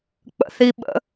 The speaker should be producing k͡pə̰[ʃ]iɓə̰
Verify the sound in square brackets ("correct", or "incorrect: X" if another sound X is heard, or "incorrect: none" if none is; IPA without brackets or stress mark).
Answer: incorrect: θ